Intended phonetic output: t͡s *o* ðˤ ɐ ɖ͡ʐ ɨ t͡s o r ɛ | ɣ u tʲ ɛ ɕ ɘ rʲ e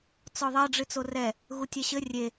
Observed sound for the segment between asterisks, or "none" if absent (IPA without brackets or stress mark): ɔ